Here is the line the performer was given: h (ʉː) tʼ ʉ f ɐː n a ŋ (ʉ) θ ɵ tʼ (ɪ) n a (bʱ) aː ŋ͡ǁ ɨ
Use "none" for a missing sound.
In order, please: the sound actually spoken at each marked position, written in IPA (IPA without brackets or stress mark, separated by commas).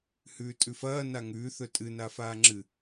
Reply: ʉː, ʉː, ɨ, f